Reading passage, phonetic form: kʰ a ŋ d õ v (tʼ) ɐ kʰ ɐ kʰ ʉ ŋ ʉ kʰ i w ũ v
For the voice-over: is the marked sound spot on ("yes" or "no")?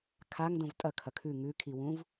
yes